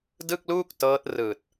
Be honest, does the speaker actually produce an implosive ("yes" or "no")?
no